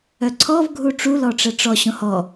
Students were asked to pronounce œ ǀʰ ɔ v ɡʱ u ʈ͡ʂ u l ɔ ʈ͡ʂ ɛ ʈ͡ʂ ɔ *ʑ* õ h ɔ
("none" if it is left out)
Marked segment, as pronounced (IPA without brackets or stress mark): ɕ